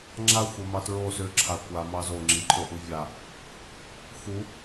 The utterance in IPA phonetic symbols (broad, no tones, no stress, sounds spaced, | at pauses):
ŋ͡ǁ a xʷ ɐ m ɑ t ɹ o s ʏ ǁʰ a kʷ a m ɑ z o ŋ͡ǁ i ǃʰ o ʔ u vʲ a | x u